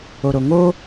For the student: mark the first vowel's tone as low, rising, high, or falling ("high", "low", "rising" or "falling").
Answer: low